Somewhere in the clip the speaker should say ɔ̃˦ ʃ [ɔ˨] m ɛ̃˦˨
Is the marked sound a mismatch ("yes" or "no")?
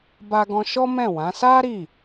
yes